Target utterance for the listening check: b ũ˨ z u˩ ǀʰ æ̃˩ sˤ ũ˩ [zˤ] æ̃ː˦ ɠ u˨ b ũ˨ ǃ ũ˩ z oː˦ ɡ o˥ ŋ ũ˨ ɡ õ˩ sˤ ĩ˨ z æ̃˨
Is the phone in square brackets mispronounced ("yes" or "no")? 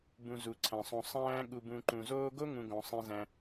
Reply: yes